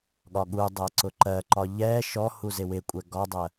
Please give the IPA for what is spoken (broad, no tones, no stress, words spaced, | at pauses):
ɠɒɠudˤɜ ǀʊǃɜǃɒ ʎɛ ʃɔ huzɪwɪkʷʼɛ ɡɒdˤɜ